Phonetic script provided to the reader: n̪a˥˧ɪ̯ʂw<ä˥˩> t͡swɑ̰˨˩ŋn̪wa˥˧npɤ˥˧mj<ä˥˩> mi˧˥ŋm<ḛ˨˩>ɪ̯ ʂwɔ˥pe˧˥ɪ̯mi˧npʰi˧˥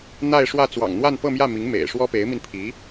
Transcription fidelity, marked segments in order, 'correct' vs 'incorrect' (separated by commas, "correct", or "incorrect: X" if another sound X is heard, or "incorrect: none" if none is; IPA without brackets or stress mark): correct, correct, correct